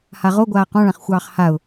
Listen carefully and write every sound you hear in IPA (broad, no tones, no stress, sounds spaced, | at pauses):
h a ʁ o ɡʷ aː q ɔ̃ ɭ ã χ xʷ ɑː χ h a ʊ̯